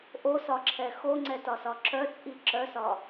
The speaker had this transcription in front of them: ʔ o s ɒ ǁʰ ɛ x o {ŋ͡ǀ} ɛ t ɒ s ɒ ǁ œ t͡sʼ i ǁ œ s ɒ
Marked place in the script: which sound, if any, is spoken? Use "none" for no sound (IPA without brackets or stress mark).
ŋ͡ǀ